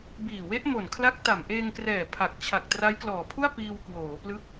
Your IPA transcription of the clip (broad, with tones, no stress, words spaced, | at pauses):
biː˨˩we˦˥ʔmo˨˩nkʰla˦˥k̚ ta˨˩mʔeː˧ŋkrɛː˨˩ pʰa˨˩k̚ t͡ɕʰa˨˩k̚tra˦˥jklɔː˨˩pʰu˥˩a̯ piː˧wkwoː˩˦plɯ˦˥k̚